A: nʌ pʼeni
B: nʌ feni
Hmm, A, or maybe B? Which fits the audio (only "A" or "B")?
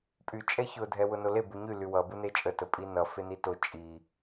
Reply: B